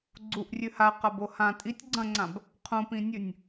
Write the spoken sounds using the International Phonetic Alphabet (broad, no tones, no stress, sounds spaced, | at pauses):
ɡ͡ǀ u ʔ rʲ ʉ h a q a b o h ã tʼ i tʲ ɡ͡ǀ ɐ̃ ŋ͡ǀ ã b | qʰ ũ p ĩ nʲ ʉ nʲ